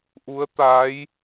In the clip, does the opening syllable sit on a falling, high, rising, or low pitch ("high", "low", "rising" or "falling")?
rising